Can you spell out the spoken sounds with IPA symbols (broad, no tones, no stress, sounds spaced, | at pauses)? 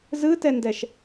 z ɯ t ɛ n d ɛ ʃ